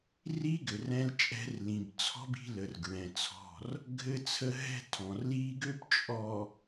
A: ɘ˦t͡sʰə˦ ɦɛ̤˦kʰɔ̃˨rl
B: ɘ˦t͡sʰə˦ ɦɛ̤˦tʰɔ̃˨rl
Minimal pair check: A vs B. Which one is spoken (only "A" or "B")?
B